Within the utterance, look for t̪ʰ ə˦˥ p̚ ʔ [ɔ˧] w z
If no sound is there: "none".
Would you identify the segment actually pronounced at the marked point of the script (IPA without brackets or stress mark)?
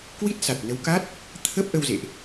ə˧